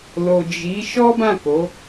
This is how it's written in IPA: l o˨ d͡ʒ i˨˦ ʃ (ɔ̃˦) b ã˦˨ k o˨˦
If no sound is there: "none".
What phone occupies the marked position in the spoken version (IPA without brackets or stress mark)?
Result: ɔ˦